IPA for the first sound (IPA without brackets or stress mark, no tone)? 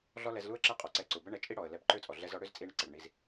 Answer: ɮ